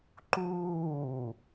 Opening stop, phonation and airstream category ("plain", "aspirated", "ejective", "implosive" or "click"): click